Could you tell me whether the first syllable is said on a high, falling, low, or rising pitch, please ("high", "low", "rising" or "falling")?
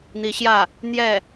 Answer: rising